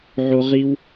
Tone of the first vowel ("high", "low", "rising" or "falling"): high